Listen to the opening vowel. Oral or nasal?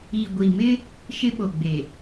oral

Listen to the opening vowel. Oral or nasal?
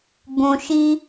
nasal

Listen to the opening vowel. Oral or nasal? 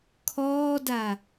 oral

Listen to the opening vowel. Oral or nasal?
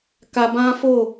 oral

